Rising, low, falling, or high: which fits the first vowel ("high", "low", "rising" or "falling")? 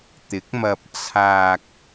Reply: rising